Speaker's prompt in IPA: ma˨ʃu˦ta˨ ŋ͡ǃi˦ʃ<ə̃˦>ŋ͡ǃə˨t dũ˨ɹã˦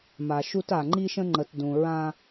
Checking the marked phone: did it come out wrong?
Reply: no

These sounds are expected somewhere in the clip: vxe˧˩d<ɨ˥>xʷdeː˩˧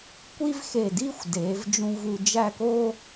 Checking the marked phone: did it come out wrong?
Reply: yes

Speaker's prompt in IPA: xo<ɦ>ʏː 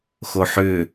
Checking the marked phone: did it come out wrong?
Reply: yes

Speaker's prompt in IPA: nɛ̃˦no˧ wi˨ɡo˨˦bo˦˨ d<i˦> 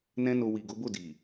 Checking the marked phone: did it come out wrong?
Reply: yes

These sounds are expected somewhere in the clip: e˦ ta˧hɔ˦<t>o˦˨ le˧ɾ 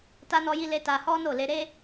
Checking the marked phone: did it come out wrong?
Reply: yes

